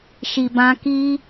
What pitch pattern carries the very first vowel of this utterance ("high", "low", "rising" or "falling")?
low